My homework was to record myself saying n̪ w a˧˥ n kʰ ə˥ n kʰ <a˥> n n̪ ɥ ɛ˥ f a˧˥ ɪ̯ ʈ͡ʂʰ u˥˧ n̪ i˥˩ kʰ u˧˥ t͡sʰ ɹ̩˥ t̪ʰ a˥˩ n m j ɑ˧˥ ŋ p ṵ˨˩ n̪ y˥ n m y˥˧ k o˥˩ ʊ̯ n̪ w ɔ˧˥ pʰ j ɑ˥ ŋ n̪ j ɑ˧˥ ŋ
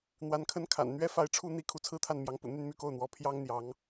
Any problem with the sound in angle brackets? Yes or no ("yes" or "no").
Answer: yes